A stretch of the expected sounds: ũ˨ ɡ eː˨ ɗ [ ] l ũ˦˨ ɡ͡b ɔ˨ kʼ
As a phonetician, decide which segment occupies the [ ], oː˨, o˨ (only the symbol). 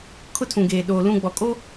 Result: oː˨